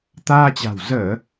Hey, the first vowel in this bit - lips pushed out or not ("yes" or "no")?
no